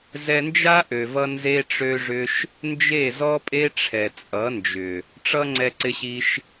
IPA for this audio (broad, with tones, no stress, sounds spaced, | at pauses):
z ɛ˧ n d͡ʒ a˦ ʔ ø˨ v ʌ˧ n z e˦ ʈ͡ʂ ø˦ ʐ ʏ˦ ʃ | n d͡ʒ e˦˨ z ɔ˦ pʼ e˦ ʈ͡ʂʰ ɛ˨ t͡sʼ ʌ˨˦ n d͡ʒ ʏ˨ | ʈ͡ʂ ʌ˦ ŋ͡ǀ ɛ˧ ǀ ɪ˧ ɕ i˧ ʃ